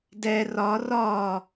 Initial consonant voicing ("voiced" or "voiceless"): voiced